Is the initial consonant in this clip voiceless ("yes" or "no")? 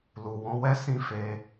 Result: no